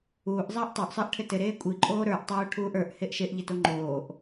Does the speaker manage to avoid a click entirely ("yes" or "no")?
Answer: no